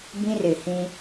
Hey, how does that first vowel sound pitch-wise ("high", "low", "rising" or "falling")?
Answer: high